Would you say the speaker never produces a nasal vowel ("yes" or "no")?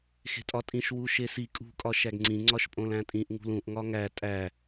no